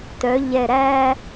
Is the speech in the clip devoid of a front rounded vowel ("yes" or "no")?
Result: no